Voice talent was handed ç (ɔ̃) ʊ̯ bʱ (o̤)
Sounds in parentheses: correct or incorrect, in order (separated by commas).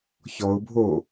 incorrect, incorrect